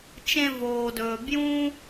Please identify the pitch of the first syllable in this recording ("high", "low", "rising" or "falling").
high